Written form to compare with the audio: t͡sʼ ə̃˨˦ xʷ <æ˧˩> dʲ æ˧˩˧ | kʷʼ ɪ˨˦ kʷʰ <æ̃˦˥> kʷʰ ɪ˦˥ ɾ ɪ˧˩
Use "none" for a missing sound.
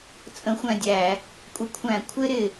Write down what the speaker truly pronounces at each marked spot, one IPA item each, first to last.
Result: æ̃˧˩, æ̃˧˩˧

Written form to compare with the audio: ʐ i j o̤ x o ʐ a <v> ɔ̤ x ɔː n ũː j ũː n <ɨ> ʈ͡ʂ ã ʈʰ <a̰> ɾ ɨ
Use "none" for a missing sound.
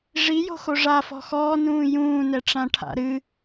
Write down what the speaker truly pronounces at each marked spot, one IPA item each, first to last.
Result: f, ɛ, a̰

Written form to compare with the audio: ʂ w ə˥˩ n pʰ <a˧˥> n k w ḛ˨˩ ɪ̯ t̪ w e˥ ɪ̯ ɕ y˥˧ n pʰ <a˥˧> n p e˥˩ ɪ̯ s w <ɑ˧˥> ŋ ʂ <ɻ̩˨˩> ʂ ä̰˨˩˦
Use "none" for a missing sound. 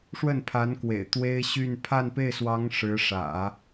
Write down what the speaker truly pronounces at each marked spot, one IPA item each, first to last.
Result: a˧˥, a˥˧, ɑ˧˥, ɻ̩˧˥

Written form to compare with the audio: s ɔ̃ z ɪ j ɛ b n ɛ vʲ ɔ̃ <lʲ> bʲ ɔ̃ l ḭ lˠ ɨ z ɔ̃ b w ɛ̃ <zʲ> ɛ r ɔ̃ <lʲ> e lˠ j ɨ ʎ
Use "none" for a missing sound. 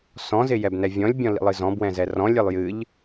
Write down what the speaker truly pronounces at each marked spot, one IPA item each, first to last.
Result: lʲ, z, lʲ

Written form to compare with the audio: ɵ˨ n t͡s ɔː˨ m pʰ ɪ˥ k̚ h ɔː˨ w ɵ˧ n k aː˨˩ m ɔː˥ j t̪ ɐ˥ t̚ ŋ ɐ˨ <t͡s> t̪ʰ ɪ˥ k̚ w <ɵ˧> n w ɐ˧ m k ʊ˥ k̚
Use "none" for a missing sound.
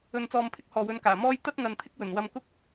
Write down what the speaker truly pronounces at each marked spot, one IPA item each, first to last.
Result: n, ɵ˨˩

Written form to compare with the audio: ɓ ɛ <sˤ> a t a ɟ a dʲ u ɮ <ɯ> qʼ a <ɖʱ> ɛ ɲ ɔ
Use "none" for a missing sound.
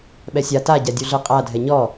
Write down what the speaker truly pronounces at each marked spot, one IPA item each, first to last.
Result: sʲ, ɯ, dʱ

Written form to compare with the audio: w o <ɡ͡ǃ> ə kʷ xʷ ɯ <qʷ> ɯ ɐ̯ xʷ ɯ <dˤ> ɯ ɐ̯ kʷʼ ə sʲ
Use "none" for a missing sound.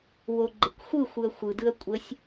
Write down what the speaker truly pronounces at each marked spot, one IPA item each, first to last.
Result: ɡ͡ǃ, xʷ, d

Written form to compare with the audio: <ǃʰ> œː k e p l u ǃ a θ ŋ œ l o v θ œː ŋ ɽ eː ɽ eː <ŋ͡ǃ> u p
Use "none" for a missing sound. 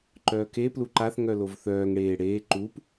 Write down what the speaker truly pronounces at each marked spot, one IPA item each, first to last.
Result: ǃ, ǃ

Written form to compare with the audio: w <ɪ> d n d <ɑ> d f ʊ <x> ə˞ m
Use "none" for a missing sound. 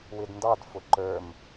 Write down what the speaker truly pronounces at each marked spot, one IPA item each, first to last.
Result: ɪ, ɑ, ǃ

